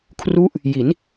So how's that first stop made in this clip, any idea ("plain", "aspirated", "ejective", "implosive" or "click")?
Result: aspirated